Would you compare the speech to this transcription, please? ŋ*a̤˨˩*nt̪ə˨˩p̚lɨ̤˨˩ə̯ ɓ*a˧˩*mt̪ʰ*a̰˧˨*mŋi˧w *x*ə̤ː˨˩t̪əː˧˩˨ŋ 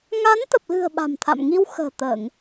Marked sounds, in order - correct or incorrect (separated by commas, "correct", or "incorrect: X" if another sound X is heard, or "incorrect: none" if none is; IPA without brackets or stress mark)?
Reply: incorrect: a˨˦, incorrect: a̤˨˩, correct, correct